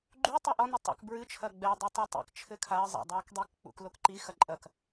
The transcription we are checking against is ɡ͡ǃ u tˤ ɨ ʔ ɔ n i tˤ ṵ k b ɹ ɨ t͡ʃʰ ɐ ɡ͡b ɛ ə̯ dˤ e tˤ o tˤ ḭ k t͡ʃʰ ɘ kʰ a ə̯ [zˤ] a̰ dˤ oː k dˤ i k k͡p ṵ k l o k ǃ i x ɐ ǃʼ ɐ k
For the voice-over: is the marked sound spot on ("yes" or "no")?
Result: yes